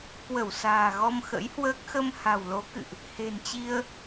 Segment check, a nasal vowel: absent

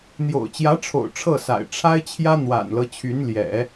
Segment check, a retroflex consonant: present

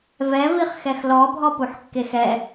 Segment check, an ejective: absent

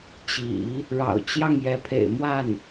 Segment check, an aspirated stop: present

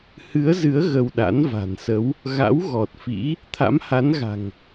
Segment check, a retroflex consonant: absent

